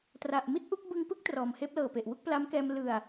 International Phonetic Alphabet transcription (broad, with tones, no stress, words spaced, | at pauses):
tra˨˩ʔmi˥˩t̚ʔu˦˥k̚ bɯ˧ŋpɯ˦˥k̚ trɔː˨˩mheː˦˥p̚lɤː˨˩pe˨˩ʔ wu˥˩k̚pla˦˥mkɛː˧m lɯ˨˩a̯